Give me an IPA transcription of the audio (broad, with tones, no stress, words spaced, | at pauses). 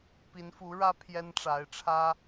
pi˧˥nfu˧˥ɻä˥ pʰjɛ˥nʈ͡ʂa˧˥ɪ̯ʈ͡ʂʰä˥